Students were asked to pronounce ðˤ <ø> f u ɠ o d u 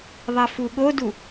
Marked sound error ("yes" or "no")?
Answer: yes